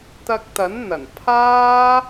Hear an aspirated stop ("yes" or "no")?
yes